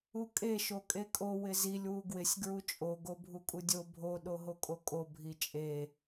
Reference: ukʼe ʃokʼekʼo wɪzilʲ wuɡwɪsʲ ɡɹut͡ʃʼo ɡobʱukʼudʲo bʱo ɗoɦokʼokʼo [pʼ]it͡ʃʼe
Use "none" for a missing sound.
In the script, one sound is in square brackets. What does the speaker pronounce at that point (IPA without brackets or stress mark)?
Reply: bʱ